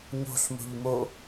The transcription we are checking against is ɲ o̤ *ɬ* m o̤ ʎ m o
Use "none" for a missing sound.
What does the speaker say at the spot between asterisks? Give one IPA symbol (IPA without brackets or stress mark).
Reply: ɬ